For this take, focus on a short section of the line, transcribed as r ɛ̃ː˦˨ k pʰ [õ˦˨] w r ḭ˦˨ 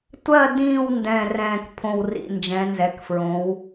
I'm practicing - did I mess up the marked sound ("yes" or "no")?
no